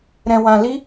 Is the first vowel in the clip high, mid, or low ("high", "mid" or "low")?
mid